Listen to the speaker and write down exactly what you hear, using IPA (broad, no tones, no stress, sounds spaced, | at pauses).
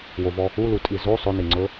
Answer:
w o v ɔ | u l u tʼ i z o sˤ ɵ n i ŋ͡ǀ ɵ